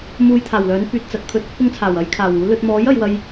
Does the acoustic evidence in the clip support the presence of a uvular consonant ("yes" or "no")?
no